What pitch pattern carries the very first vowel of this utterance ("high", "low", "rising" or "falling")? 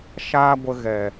high